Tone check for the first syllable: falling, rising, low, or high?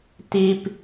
high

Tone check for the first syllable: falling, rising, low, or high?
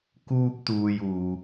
high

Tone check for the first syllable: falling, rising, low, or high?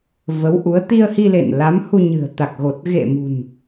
rising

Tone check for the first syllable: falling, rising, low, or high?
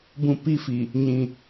high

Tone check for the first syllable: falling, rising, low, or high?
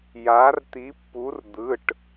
rising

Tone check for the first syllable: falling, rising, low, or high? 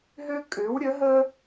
high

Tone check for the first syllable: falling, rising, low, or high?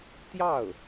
falling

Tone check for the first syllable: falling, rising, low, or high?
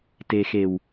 low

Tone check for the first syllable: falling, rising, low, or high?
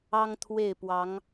high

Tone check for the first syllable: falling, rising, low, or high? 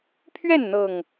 falling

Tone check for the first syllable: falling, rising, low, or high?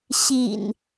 low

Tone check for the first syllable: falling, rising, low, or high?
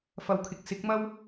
rising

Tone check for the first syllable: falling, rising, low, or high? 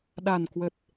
low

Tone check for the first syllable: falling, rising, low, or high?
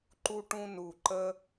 high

